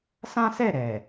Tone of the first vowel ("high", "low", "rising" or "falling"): high